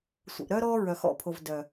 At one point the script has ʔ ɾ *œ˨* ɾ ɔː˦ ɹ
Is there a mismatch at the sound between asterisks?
yes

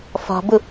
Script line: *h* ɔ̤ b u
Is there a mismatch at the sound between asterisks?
yes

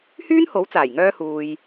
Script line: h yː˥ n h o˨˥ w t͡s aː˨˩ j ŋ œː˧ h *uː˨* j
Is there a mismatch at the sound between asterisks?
no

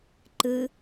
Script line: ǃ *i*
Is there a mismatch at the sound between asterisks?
yes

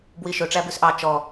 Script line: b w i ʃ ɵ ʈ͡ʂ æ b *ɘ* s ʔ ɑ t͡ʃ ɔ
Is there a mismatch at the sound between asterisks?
yes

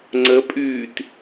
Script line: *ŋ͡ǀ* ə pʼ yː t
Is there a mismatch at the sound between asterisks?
no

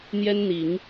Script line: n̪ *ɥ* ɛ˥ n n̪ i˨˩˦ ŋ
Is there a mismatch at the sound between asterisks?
yes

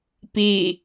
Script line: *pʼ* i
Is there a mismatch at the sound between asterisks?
yes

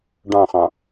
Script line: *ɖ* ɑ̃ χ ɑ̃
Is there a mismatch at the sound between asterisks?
no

